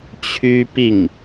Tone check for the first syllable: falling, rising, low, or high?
high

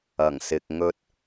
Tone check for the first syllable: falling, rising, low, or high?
low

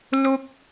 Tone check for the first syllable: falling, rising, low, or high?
low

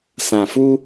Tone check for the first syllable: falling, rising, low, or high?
low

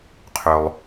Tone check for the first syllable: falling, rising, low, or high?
low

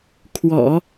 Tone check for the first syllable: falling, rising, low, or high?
low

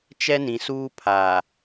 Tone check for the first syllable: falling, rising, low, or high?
high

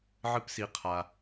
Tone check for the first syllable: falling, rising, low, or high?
high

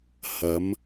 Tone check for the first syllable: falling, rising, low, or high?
rising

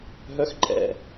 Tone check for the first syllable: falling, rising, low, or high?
low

